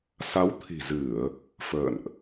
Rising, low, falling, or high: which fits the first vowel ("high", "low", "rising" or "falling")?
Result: rising